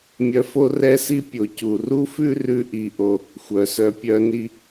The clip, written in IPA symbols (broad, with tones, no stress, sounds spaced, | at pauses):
mʲ œ˧ f o˥ r ɛ˥ s i˥ pʲ o˩ c u˩ r u˥ f ʉ˥ r ʉ˧ ʔ i˩ ʔ o˩ | xʷ œ˩ s œ˧ pʲ œ˥ n i˥